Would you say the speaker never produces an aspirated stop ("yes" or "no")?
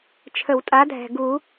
no